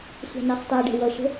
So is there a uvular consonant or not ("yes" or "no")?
yes